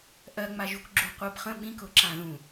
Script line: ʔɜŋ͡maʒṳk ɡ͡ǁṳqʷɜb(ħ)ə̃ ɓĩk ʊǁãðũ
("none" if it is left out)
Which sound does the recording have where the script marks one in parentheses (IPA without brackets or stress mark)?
χ